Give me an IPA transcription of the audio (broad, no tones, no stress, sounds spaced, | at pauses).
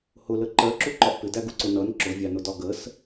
h ʊ l ə ǃ ɜ ǁ u ǃ ɒ ʔ p ɪ d æ ɡ u ǀ ʊ n ʌ n ǁ ʊ vʲ ɑ n ʊ d ɒ ɡ ə s